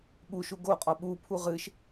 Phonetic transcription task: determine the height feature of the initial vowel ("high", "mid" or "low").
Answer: high